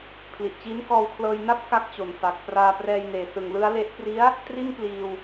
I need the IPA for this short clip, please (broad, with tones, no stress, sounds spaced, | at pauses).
pʰ l i˨˩ ʔ t͡ɕ iː˦˥ n k ɔː˧ w kʰ l ɤː˧ j n a˥˩ p̚ k a˥˩ k̚ t͡ɕ o˨˩ n f a˨˩ k̚ p r aː˧ p r ɛː˧ j n eː˨˩ s ɯ˨˩ ŋ l ɯ˦˥ a̯ l e˦˥ ʔ p r i˦˥ a̯ | t r i˥˩ n p l iː˧ w